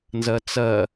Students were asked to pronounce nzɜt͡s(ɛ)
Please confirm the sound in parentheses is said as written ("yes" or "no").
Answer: no